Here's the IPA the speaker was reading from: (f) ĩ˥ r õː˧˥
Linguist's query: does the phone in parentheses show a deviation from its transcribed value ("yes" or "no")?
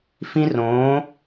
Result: no